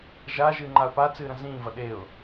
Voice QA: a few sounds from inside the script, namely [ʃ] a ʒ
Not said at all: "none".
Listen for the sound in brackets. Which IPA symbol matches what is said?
ʒ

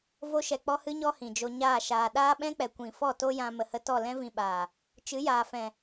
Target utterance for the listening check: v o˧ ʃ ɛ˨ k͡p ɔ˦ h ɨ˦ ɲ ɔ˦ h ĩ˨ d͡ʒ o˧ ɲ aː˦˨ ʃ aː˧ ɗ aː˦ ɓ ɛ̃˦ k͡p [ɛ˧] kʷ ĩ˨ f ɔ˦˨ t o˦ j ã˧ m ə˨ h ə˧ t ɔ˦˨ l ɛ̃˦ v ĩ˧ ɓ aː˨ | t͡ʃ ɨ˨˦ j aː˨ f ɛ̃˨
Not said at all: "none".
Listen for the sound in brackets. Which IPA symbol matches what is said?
ɛ˨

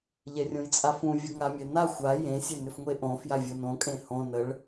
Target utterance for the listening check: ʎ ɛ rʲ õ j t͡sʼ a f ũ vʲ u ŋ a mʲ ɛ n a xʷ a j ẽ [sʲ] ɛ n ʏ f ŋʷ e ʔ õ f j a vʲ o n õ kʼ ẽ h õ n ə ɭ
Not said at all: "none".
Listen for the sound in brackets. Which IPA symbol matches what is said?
sʲ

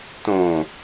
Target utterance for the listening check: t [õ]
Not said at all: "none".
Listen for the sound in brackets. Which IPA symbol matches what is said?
õ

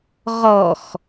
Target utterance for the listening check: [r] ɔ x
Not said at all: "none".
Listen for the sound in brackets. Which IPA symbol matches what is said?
ʁ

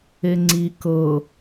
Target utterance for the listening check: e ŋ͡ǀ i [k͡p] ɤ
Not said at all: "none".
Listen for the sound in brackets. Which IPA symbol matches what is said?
k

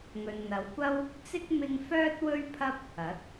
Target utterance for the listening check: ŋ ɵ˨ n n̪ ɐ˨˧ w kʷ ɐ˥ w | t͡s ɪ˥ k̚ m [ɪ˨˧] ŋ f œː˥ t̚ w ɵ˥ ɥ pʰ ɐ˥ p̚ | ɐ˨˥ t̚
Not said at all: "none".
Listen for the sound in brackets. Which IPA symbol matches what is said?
ɪ˥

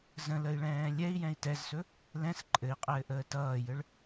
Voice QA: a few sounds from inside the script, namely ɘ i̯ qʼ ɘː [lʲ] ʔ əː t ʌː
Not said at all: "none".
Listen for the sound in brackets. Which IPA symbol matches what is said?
none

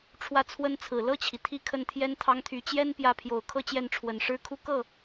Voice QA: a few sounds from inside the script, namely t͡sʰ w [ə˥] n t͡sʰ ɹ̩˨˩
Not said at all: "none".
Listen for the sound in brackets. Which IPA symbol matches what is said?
ə˥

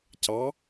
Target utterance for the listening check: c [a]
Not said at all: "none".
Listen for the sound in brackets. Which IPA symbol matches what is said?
ɑ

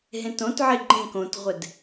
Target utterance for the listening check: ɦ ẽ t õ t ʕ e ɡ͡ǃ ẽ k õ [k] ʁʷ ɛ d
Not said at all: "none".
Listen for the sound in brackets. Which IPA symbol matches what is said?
t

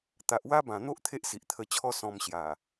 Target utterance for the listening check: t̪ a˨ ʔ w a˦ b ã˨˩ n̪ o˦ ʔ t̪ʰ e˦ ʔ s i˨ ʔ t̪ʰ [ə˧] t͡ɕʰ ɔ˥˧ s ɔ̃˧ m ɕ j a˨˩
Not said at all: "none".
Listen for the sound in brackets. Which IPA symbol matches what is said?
ə˧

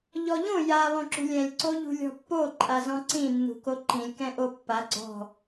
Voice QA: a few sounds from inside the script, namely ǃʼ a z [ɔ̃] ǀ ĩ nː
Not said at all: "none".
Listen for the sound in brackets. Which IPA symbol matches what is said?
ɔ̃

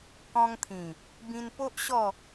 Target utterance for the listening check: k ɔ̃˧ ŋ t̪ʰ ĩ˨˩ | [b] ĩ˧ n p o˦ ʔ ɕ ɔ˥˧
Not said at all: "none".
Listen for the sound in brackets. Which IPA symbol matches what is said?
b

